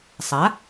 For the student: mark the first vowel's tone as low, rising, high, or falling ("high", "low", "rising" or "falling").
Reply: rising